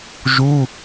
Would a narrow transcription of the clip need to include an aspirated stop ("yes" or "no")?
no